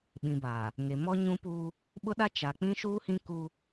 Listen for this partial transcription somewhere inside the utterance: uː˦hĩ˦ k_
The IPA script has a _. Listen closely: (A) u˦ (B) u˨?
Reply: A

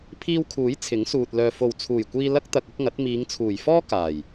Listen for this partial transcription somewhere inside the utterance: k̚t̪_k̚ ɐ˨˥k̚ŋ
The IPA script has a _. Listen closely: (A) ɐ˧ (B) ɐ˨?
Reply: B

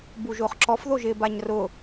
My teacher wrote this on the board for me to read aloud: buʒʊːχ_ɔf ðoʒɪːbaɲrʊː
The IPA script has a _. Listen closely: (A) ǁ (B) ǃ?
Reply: A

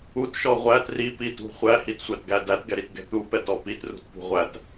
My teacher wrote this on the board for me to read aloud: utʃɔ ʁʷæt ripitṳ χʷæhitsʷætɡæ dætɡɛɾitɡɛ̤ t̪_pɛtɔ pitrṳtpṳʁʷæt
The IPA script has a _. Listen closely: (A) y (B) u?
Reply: B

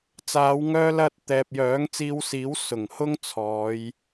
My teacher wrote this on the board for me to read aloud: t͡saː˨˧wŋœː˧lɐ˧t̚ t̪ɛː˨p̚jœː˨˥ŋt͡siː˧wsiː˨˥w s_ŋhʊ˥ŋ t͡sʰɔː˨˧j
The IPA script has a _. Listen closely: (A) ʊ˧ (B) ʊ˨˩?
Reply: B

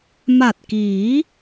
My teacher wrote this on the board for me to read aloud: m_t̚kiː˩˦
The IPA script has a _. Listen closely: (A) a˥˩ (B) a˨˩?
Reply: B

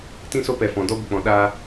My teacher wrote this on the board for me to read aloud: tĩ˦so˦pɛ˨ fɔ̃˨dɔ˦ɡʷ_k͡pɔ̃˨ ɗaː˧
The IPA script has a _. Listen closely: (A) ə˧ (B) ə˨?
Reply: B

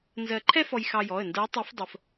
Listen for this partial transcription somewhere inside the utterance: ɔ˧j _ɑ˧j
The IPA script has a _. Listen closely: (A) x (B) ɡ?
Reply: A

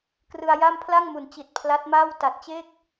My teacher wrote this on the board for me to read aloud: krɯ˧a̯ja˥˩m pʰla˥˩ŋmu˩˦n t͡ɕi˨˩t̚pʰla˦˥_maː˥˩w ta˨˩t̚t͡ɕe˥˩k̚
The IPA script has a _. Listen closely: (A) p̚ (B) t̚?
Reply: B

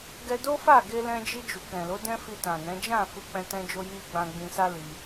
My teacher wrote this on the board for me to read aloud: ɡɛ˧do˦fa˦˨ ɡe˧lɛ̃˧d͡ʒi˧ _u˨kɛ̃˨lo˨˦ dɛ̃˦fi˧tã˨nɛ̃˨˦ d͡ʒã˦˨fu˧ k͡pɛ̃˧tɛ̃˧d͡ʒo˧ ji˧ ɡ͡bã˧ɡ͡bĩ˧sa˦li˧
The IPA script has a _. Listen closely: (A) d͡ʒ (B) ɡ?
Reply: A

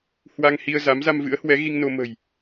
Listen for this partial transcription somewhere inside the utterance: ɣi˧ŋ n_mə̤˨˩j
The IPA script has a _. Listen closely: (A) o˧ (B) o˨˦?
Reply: A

